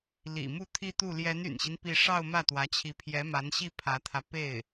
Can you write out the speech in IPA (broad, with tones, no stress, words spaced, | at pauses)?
lḭ˨˩mu˥˧ t̪ʰi˥˧t̪u˥˩ ljɛ˧˥ny̰˨˩nɕi˦n pi˥˧ ʂɑ˥˧ʊ̯mä˥˩t̪wä˧˥t͡ɕʰi˧˥ pʰjɛ˧˥ma˧˥nɕi˥˩ pʰä˧˥t̪ʰä˧ pe˥˩ɪ̯